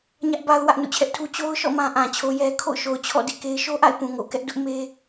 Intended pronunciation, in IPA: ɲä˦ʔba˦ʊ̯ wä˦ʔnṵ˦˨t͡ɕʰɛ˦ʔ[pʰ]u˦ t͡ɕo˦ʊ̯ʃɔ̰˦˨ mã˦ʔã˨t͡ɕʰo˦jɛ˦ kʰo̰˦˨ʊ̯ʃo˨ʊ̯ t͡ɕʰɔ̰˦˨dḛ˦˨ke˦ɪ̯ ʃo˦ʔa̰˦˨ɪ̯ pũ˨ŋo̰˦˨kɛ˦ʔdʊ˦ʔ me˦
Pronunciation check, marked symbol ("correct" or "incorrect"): incorrect